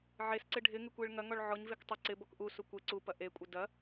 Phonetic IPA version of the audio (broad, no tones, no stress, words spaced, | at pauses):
ʕesǀɪ ɖʱɪŋɪkʷeɭ ŋɐŋɔɭ ʕɔɲvek tˤɪ ǀɪbɔk ʔusu kʷe ǀupɐ ʔekʷʼɪ dɐ